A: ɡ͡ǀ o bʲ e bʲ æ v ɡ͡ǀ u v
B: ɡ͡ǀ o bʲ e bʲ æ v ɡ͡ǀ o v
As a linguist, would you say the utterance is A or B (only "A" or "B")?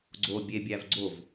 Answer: B